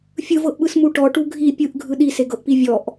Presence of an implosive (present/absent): present